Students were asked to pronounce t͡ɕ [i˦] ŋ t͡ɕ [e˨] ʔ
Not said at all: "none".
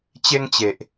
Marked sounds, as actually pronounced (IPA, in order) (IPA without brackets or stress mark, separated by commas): e˦, e˨